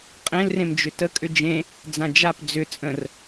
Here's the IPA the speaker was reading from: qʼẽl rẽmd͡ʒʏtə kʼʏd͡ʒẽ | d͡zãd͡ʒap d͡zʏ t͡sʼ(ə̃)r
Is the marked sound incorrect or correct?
correct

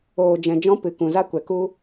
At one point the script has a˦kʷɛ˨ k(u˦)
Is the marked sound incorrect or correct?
correct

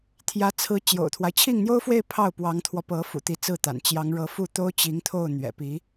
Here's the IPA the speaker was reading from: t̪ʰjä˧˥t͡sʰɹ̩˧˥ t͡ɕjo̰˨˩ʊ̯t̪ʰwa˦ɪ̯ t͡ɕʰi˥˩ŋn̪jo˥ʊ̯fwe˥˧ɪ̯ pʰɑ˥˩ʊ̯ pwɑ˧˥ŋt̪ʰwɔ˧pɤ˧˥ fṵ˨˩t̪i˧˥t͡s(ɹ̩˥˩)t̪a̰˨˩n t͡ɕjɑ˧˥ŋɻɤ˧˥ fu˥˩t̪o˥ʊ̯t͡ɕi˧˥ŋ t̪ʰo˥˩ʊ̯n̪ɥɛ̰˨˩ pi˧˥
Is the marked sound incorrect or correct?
correct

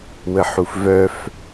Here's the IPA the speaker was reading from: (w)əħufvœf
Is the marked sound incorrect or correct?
correct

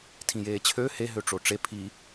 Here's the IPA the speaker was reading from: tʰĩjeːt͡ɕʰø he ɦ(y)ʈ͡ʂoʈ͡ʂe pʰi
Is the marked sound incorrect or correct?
incorrect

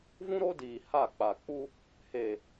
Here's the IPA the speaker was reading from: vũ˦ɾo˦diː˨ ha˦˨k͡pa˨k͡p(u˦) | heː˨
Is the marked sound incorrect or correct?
correct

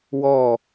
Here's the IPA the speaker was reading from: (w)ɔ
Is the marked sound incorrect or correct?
correct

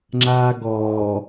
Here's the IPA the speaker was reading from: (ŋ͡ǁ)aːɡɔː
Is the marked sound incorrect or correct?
correct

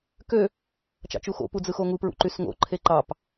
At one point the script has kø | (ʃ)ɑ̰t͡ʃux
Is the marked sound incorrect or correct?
incorrect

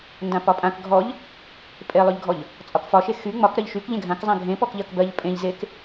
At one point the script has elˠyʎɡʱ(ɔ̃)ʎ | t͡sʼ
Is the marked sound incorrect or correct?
incorrect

